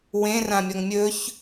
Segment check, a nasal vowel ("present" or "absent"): present